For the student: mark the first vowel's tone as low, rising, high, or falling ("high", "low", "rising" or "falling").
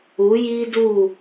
rising